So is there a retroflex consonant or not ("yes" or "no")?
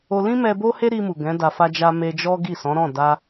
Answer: no